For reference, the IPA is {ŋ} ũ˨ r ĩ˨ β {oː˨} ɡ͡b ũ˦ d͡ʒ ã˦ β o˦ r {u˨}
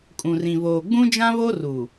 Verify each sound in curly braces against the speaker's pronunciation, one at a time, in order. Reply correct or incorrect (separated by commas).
incorrect, correct, correct